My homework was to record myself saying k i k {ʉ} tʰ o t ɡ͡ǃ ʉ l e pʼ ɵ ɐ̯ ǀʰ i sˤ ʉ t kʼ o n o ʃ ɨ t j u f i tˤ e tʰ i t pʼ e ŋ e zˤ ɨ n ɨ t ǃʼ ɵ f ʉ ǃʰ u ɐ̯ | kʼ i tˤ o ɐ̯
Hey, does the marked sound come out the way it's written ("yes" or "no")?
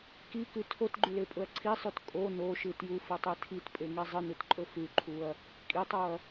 yes